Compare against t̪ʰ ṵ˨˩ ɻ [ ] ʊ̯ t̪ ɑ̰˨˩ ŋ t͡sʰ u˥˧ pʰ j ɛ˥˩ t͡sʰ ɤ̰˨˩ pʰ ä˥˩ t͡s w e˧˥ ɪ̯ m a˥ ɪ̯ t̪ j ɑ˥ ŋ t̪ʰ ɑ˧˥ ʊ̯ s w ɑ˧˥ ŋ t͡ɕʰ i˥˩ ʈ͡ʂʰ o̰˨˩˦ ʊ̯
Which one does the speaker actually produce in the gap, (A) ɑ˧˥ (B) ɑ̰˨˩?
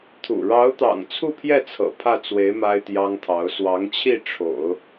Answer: A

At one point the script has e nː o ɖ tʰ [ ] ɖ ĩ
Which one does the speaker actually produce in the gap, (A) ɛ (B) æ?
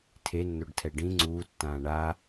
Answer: A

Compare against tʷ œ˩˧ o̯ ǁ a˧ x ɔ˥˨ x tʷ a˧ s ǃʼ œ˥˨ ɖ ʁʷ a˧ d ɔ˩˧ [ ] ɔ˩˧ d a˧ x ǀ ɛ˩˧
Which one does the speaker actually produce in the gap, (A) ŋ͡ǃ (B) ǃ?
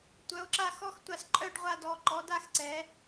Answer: B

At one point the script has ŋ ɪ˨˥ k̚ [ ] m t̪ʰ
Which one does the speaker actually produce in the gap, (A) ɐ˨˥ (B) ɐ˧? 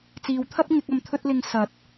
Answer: B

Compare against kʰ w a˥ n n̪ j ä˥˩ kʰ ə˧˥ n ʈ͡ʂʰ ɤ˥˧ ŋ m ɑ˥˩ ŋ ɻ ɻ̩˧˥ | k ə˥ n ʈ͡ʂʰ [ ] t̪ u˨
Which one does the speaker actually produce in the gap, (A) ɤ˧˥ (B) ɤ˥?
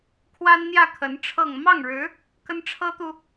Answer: B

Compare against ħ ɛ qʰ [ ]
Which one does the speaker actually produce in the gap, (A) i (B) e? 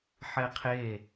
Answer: B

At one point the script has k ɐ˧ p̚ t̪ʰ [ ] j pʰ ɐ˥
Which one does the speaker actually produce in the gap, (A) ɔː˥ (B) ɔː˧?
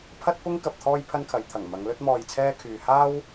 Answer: A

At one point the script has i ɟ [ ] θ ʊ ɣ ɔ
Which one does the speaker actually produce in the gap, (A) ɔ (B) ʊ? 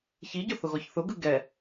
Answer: B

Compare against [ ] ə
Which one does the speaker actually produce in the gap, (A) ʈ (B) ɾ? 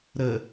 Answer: B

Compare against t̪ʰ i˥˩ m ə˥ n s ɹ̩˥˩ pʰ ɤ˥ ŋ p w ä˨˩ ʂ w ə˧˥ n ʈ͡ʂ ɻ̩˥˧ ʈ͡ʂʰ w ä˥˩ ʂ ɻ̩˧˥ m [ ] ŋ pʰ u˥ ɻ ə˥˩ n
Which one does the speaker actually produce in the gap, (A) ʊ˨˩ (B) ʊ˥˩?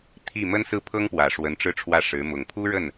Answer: A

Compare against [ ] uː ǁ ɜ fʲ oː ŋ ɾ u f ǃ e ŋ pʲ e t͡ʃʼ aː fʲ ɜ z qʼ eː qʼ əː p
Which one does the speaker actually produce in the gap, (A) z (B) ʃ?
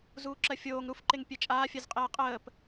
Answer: A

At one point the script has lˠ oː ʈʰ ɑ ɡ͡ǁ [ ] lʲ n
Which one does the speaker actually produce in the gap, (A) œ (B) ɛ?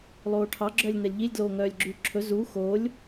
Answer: A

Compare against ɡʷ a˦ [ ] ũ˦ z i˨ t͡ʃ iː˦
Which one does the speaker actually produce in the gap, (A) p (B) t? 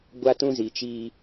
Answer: B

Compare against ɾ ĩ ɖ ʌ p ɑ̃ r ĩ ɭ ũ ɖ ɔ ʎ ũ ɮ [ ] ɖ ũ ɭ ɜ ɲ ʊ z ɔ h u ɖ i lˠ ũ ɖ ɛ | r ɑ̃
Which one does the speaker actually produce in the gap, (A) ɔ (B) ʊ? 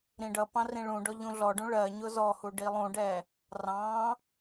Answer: A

